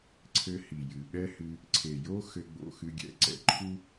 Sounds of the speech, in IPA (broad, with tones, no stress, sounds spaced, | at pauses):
ǀʰ ɘ˧ h i˨ j ɨ˨ ɓ ɛ˦ h ɨ˧ | ǀʰ e˨ j o˦ x ɘ˧ ɡ͡b o̰˧ x ɨ˧ ɡʲ ɛ̰˧ ǀ ɛ̰˧ ǃʰ u˦